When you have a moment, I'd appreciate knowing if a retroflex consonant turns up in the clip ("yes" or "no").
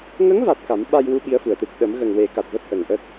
no